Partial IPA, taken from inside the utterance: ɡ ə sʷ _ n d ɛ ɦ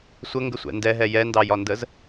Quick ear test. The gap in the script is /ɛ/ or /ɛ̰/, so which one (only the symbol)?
ɛ̰